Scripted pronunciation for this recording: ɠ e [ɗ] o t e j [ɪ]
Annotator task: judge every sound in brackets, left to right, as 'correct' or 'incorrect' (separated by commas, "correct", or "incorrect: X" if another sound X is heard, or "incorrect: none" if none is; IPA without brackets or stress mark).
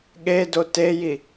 incorrect: d, incorrect: i